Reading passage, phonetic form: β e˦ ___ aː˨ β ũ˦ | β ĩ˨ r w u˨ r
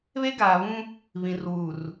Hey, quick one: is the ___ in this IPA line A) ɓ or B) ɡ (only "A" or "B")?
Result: B